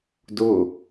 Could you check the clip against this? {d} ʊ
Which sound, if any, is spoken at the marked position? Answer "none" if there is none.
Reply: d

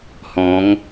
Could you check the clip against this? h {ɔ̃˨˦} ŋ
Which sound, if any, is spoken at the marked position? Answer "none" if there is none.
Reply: ɔ̃˨˦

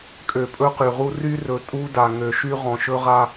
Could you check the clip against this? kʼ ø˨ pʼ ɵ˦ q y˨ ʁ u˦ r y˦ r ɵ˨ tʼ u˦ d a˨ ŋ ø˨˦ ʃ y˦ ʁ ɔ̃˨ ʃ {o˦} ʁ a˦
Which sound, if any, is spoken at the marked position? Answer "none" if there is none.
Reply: ɵ˦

